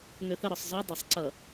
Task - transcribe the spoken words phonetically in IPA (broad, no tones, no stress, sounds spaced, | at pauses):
ŋ ø θ ə ɾ ɔ sˤ z ɔ dˤ ə sˤ ǀ ʌ